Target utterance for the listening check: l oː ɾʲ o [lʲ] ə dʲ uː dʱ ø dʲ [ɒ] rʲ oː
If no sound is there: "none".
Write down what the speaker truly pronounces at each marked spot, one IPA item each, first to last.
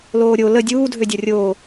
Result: l, ɒ

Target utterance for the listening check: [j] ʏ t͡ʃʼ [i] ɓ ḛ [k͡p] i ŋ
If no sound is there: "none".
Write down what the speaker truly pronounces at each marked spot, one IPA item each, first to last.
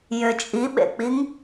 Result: j, i, k͡p

